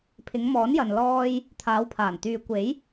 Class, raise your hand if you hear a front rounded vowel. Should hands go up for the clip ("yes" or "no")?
yes